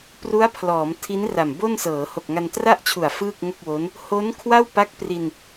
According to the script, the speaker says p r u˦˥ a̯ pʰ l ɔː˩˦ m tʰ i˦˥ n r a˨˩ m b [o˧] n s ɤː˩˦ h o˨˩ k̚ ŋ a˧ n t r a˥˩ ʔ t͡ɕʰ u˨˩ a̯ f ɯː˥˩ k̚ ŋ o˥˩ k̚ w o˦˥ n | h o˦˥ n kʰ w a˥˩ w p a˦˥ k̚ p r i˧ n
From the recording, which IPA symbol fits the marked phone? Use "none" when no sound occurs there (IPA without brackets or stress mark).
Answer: o˥˩